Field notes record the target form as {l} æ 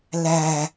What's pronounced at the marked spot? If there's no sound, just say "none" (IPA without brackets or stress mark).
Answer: l